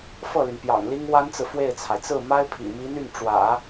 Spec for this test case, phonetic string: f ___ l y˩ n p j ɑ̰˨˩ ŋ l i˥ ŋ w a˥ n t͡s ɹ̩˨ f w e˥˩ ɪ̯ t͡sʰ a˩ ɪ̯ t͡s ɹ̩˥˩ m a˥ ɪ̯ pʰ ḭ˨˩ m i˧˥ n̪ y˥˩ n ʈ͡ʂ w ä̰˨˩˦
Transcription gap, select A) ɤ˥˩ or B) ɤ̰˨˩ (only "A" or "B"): A